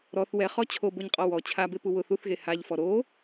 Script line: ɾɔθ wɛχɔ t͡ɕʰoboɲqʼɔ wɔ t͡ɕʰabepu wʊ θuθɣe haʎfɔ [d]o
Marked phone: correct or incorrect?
incorrect